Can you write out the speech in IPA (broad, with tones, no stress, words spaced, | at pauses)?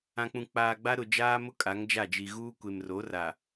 ã˨k͡pũ˨ k͡paː˨ɡ͡ba˦ɾʊ˨ d͡ʒaː˦mʊ˦ kʼa˨˦ŋd͡ʒa˦˨d͡ʒi˨ ɣuː˦ kʷe˨mro˨˦ra˨